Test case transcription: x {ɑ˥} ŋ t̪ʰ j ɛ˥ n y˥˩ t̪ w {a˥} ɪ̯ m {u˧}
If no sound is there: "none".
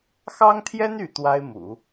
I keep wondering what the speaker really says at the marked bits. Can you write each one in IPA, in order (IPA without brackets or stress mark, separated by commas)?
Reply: ɑ˥, a˥, ṵ˨˩˦